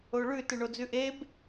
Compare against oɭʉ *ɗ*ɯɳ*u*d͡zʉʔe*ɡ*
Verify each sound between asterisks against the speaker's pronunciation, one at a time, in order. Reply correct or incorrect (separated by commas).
incorrect, incorrect, incorrect